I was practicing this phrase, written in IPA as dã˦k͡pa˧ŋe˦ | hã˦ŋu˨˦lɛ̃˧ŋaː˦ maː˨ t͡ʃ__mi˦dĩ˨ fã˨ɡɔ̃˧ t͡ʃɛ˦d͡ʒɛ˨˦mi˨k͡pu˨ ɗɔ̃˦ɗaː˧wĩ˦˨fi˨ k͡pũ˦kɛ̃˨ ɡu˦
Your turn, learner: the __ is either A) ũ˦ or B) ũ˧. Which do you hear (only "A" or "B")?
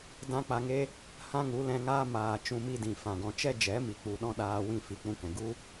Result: B